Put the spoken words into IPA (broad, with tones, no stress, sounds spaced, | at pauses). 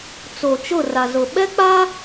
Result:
t͡s o˨ t͡ʃ ʊ˦˨ r a˨ z ʊ˨ ɓ ɛ˦ k͡p a˦